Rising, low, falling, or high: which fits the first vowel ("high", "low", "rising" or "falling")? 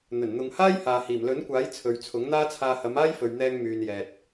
low